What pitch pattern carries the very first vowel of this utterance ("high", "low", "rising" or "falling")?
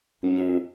low